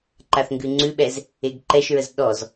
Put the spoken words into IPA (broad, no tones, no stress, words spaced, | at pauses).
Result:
ǃaθŋɡʉŋ͡ǀʉɓɛz | eɡǃɛʃɹəz ɗɔz